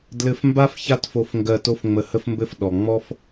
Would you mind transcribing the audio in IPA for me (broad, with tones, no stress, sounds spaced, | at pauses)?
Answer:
d l ɘ˧ f m b a˥ f ç a˥ t f o˧ f ŋ ɡ ɜ˧ t o˥ f ŋ͡m ə˧ h ə˥ f m b ɘ˥ f ɗ ɔ˩ ŋ͡m ɔ˥ f